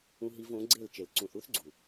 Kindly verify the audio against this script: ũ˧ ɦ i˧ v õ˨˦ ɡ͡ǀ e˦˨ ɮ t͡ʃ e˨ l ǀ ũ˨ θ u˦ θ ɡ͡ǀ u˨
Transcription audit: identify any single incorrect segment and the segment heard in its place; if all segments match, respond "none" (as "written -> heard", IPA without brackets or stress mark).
ɮ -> l